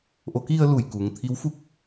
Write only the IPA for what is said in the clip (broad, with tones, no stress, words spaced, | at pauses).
ʔo˩˧ki˧ə̯ lu˧˩jku˩ŋ t̪ʰi˧˥wfu˥˨k̚